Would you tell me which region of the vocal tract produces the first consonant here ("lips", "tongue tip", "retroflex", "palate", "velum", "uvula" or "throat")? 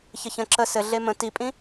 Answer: palate